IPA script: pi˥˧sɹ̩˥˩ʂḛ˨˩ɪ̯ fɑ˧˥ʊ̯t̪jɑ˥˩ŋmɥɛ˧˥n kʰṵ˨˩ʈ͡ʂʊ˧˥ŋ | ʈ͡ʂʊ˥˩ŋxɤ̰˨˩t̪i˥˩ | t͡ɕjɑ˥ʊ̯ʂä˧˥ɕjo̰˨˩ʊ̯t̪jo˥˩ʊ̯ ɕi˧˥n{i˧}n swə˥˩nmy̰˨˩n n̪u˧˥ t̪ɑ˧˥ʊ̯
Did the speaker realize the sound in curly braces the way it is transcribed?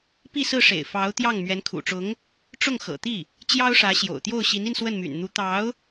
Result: yes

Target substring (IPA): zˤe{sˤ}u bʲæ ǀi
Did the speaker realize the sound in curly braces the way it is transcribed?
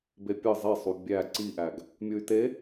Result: yes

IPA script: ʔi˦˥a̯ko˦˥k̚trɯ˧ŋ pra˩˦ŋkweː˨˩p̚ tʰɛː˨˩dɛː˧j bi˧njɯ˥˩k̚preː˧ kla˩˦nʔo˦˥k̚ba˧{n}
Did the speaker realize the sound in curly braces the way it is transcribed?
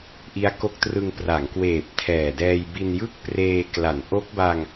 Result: no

